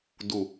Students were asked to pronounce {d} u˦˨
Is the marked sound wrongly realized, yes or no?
no